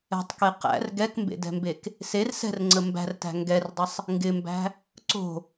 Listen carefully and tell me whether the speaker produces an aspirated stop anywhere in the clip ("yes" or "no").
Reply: no